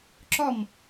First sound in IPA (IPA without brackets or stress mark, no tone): ǁ